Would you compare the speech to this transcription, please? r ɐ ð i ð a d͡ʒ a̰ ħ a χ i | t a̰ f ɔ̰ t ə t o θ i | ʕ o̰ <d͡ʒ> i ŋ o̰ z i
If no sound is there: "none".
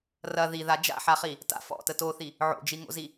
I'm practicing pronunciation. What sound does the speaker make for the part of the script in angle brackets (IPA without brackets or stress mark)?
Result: d͡ʒ